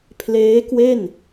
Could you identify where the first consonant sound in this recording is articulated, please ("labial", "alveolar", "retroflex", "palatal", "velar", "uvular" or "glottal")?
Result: labial